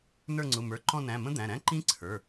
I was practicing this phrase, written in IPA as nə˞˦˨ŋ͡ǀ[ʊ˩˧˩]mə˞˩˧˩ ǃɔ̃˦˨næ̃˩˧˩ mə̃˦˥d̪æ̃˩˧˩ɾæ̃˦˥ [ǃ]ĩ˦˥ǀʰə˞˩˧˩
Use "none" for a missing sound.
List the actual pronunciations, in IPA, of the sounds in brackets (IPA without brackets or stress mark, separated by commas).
ʊ˩˧˩, ǃ